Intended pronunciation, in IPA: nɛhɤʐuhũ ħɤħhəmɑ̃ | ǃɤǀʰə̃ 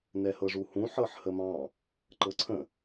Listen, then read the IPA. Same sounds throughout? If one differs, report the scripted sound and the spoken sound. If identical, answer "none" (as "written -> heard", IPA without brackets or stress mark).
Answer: none